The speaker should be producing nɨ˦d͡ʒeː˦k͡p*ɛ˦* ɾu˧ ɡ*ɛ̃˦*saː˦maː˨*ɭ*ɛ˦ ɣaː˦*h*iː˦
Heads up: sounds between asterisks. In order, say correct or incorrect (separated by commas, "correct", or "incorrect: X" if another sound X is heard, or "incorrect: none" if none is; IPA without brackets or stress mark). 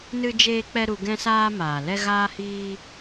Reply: correct, correct, incorrect: l, correct